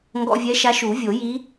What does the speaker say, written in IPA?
ŋɡɔ̰˧vʲɛ˧˥ʃa˧˥ ʃu˨˩˦vʲo˨˩˦ji˧˥

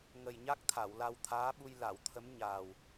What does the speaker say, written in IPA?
ŋə˨˩jɲa˦˥k̚ t̪ʰa˨˩˨wla˧wt̪ʰaː˧˥ɓu˧j la˨˩˨wt̪ʰə˧˥m ɲaː˨˩w

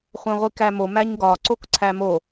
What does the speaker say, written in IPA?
χʷæ̃ʁʷikæmo mæɲɡɒ ǀokǀʰæmo

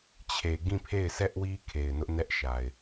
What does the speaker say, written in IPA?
t͡ɕʰe˨ɡĩ˦˨pʰe˦˨ɪ̯ sɛ˦ʔwi˦ kʰe˨ɪ̯nʊ˦ʔnɛ˦ʔ ʃa˨ɪ̯

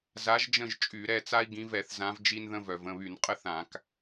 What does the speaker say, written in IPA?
za˨˦ʒd͡ʒə̃˦˨ʒ t͡ʃʼy˧˩˧ ɾɛ˩˧˩t͡sa˥i̯ ɡĩ˨˦vɛ˧˩˧θzã˨˦v d͡ʒi˥nðə̃˥ vœ˩və̃˩˧˩βy˧˩˧n qʼə˥θã˧˩˧k

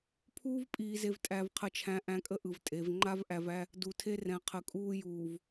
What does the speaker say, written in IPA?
pʰuː˦vpʼiː˨ze˨v tʼæ˨vqʰə˨t͡ʃʰæ̃˨ ʔæ̃˦kʼə˦ʔɯ˨vtʼe˨˦v ŋ͡ǃa˦vʔæ˨væ˦ | du˨tʰe˦rɛ̃˨˦ qʰə˨kʼuː˦juː˨v

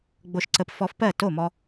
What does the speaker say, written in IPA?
ɡ͡bo˧ʃǀə˧p fɔ˧fpɜ˥˩ to˥˩mɔ˧

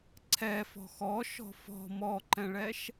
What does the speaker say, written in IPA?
ǀʰɛfɔ̤ xɔʃɔ̤ fɔ̤ mɔǃɛ̃ɭɛʃ

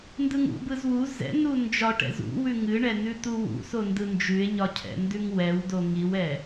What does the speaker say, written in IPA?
ndɯŋṵbɯz wu zɛ̰nu nd͡ʒɒʈɛ̰ zṵwʉ ŋɨɳɛ nʉt̪uwṵso ndɯnd͡ʒʉe̯ɲɒ cʰɛ̰ndʉŋwɛwdo ŋiwɛ

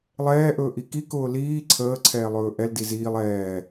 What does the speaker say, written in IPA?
lˠɛːʔɵːʔi kikʊː liː ǀʰəːǀʰɛːlˠɵː ʔɛldi ziːlˠ ɛː

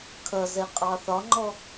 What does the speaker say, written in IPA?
kʰʌzɛ qʼɑθɒŋ͡ǃɔ

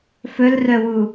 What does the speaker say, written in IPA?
fɵlrœwu

